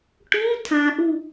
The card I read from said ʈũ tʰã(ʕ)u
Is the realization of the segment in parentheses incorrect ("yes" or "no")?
yes